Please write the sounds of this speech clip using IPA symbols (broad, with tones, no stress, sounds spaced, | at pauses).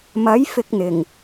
m ɐ˨˥ j f ɪ˧ k̚ n̪ ɪ˨˩ ŋ